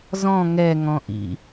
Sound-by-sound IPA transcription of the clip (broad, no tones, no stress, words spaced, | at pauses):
zɔ̃ ŋɛ ŋɔ̃ʔḭ